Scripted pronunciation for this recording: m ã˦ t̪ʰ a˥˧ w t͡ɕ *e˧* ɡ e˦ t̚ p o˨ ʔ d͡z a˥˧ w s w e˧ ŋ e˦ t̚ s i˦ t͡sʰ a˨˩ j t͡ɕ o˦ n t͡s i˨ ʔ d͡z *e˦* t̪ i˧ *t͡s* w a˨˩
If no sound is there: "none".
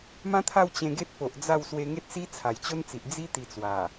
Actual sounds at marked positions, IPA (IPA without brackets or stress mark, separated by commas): ẽ˧, i˦, t͡s